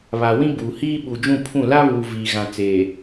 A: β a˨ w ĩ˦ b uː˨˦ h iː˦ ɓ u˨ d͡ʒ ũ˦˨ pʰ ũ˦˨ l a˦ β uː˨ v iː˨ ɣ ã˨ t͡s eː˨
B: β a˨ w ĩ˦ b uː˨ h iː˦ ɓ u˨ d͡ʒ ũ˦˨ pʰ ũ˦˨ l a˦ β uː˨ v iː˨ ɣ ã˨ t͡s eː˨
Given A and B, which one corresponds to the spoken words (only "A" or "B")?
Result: B